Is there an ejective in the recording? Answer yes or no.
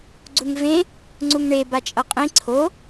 yes